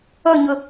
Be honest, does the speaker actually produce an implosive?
no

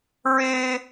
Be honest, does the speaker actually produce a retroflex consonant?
no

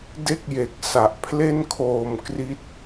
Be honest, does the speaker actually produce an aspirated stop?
yes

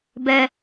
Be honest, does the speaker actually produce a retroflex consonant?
no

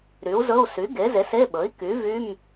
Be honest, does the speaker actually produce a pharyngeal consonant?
no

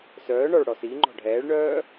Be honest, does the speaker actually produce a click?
yes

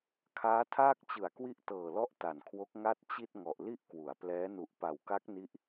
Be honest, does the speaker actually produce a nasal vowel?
no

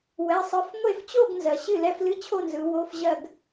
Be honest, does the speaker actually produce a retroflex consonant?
no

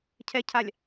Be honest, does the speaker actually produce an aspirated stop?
yes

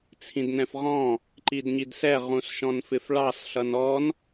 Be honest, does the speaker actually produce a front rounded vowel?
no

